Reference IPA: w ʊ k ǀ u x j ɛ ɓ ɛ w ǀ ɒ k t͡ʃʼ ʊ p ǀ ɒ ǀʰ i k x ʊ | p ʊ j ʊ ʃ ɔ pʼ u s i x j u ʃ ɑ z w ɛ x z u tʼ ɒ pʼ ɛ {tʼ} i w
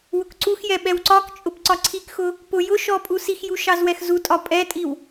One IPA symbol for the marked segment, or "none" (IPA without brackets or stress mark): tʼ